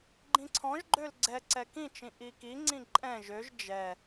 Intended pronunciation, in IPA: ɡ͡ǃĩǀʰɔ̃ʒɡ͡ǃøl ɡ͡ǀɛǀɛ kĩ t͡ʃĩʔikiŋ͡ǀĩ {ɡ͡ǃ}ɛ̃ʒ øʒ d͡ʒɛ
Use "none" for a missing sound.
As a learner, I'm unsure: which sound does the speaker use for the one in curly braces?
ǃʼ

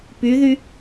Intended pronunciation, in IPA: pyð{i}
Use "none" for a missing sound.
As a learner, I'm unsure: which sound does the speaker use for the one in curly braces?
y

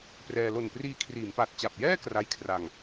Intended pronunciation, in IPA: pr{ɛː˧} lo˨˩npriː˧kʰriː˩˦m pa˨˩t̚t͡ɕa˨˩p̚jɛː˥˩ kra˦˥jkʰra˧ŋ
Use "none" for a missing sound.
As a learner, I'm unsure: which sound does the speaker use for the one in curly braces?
ɛː˧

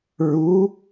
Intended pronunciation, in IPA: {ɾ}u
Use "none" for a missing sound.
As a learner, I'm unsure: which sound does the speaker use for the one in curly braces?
ɹ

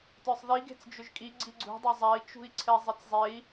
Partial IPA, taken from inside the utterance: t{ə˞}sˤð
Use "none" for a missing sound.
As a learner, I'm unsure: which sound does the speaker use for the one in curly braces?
ə˞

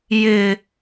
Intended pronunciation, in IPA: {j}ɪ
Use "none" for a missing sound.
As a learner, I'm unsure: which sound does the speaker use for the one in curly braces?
j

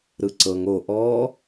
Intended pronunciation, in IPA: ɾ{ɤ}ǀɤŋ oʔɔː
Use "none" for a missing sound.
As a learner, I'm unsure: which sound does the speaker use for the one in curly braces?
ɯ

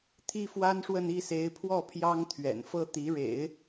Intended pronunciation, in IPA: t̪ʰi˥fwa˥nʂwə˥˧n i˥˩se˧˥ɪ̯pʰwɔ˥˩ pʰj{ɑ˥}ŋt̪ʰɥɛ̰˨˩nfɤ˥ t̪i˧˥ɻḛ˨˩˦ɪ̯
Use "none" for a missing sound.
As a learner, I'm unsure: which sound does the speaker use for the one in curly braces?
ɑ˥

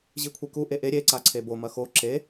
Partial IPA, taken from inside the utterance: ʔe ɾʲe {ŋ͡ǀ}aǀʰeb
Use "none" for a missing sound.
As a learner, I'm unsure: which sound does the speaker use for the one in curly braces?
ǀ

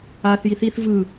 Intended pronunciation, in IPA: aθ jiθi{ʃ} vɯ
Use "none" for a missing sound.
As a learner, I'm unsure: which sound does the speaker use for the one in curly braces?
θ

